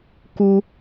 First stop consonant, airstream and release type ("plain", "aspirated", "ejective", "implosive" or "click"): plain